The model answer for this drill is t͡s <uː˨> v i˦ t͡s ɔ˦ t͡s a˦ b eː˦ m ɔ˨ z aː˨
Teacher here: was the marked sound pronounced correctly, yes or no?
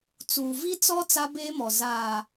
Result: yes